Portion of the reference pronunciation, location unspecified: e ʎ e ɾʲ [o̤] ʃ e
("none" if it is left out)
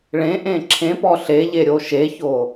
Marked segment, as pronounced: o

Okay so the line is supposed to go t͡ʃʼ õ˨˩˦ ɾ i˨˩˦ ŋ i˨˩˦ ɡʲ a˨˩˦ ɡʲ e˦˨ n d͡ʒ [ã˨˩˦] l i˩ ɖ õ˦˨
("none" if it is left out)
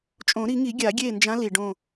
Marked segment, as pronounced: ã˧˥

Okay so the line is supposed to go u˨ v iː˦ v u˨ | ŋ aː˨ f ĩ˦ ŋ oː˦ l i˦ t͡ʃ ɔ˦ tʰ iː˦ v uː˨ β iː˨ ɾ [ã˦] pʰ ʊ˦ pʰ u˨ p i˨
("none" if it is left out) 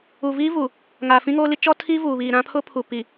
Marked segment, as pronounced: ã˦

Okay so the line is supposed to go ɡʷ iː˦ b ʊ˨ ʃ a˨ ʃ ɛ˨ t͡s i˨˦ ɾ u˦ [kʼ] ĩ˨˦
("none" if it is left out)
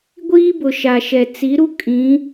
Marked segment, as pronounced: kʼ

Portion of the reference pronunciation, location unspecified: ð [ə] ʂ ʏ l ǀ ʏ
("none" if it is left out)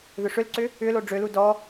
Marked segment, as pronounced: ʏ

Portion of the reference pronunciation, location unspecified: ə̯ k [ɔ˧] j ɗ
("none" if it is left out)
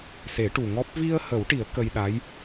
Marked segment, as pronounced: ə˧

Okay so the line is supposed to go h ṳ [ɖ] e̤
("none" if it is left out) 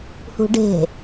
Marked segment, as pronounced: ɖ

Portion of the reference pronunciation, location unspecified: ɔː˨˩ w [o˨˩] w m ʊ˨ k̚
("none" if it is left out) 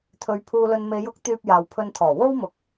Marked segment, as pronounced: o˥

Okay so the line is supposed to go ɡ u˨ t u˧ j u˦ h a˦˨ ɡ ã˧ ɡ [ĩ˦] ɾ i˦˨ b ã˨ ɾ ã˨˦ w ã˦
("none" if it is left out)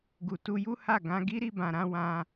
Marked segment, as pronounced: i˦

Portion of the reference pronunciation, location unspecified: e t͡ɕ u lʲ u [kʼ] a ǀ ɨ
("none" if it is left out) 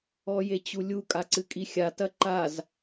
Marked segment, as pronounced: kʼ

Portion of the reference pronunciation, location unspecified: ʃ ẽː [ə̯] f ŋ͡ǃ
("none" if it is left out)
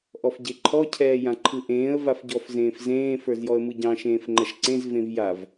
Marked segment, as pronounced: none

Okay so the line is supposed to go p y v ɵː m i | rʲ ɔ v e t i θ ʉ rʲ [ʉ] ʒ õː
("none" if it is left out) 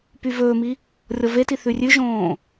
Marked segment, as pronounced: ʉ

